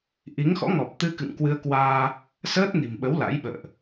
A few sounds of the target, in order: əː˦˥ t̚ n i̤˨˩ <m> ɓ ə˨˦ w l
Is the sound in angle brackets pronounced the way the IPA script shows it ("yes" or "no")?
yes